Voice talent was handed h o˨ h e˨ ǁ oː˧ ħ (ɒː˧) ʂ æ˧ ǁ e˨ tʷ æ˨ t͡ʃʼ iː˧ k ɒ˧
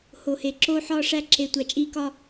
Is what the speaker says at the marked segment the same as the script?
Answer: yes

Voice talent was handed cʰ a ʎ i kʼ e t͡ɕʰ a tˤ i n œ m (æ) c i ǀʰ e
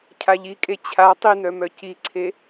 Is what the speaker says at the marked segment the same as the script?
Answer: no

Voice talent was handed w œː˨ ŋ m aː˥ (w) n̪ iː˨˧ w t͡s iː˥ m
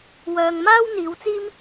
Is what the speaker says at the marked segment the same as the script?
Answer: yes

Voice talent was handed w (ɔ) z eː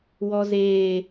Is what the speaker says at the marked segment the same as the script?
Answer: yes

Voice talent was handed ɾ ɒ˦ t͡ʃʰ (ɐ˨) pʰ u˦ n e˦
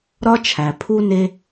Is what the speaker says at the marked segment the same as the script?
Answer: no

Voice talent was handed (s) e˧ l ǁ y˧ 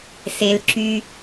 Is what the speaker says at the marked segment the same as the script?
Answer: yes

